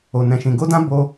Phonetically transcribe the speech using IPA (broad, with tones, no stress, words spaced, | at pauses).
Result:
o˧ nɛ̃˧ʃĩ˧ ɡo˦dã˦ bo˦